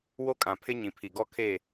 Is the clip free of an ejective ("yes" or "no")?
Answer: no